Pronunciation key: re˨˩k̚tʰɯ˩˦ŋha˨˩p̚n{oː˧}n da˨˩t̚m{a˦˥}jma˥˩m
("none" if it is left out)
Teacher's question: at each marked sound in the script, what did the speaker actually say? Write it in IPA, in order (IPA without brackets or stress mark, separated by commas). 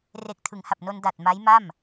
o˧, a˦˥